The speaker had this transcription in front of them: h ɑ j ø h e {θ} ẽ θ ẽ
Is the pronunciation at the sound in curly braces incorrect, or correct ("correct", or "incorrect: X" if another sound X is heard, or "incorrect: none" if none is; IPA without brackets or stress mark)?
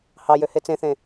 incorrect: t͡s